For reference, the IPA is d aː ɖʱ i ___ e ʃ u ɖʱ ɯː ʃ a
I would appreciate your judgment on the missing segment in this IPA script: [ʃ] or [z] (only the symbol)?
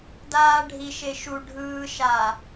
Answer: ʃ